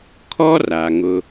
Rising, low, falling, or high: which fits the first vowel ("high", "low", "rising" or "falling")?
high